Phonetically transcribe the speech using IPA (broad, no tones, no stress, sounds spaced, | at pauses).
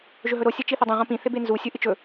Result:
ʒ ɵ ɦ ɵ ɾ o sʲ ɐ t͡ʃ i θ ɵ dˤ ũ ʁ õ p ĩ θ e b e n z u sʲ u ʔ ɨ t͡ʃ ɵ